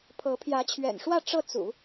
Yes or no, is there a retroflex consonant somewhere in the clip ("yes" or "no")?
yes